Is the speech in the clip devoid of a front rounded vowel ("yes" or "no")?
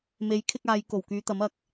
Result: no